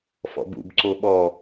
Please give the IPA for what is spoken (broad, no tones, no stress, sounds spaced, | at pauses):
f ɔ̰ b ṵ b ǀ o ɓ ɔ